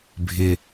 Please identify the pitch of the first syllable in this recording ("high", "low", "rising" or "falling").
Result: low